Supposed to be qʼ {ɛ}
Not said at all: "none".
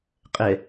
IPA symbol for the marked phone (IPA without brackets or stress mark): ɛ